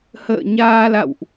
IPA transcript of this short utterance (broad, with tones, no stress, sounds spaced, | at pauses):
h ə̰ː˧˨ ɲ aː˧ l a̰˧˨ w ʔ